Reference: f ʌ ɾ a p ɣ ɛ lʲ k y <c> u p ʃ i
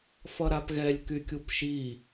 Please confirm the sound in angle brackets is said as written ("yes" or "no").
no